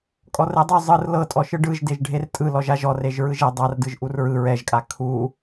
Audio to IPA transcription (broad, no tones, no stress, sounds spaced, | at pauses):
kʼ ɔ r e dˤ o zˤ ɯ r l ɤ tʼ ɔ ʃ ɯ ɖ ɯ ʒ d e ʒ ɖʱ e r tʼ ɯ l ɔ ʒ a ʒ ɔ r e ʒ ɹ ɯ ʒ e dˤ a r d ɯ ʒ ʔ u r ɹ ɯ ɹ ɛ ʒ kʼ a kʰ u